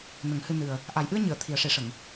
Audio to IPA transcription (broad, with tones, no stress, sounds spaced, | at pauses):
n ə˨˩˦ ŋ h ɨ˧ n ɨ˨˩ ə̯ | ʔ a˨˩ j ʔ ɨ˧ ə̯ ɲ ɨ˨˩˨ ə̯ t̪ʰ i˨˩ ə̯ ʂ e˨˩˦ ʂ ə˨˩˨ ŋ